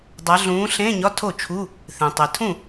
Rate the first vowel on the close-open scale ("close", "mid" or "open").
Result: open